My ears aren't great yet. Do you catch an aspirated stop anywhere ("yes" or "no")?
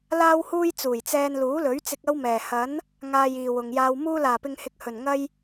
no